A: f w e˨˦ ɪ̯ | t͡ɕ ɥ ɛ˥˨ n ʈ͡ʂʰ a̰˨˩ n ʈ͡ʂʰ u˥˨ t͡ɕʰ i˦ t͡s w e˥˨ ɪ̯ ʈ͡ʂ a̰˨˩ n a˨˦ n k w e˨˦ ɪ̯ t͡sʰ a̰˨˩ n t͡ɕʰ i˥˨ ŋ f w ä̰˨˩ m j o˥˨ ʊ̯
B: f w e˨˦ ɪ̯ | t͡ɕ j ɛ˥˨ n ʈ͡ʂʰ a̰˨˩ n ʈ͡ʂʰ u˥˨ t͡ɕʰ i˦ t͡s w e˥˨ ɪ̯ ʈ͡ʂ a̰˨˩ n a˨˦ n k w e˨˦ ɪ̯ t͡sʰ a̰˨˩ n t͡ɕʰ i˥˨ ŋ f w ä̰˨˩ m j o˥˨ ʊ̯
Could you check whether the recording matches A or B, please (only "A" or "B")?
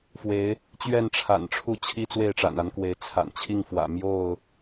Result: A